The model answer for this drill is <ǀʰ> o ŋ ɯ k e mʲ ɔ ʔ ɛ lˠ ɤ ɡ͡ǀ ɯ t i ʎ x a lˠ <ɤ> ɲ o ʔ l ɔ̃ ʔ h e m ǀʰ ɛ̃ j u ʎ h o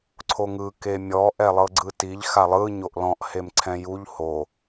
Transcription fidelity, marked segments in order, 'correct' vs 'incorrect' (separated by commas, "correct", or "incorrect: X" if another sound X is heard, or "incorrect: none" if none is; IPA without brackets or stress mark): correct, incorrect: ɯ